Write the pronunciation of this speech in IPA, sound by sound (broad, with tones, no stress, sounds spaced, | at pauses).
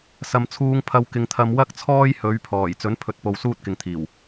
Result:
s ɐ˨ m t͡sʰ uː˧ ŋ pʰ ɐ˧ w k ɪ˧ ŋ t̪ʰ ɐ˧ m w ɐ˥ k̚ t͡sʰ ɔː˥ j h ɵ˨˧ ɥ pʰ ɔː˨˩ j t͡s ɵ˨˥ n pʰ ɵ˨ t̚ p o˨ w s uː˥ t̚ k ɪ˨ ŋ t̪ʰ iː˨˩ w